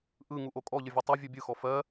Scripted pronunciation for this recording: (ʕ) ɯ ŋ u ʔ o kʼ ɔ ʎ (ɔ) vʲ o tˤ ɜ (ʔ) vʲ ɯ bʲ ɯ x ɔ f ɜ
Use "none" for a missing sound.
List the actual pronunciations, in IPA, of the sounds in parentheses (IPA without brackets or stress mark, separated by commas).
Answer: ʔ, ə, none